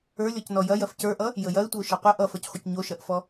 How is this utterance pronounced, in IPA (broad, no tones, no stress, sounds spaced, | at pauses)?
ə˞ lʲ ɔ c n ɔ j ɐ j ɐ f c ə˞ ʔ ʌ | j ə j ɐ ɪ̯ tʷ ə ʊ̯ ʃ ɐ qʷ ə ʔ ʌ f ə˞ c χʷ ə c ɲ o ʃ ɐ ʔ f ɔ